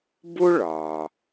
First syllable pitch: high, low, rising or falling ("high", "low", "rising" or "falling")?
high